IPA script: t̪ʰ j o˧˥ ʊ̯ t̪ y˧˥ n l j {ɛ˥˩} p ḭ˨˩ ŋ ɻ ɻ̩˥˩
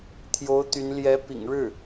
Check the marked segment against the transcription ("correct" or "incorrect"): incorrect